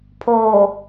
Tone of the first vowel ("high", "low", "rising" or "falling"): low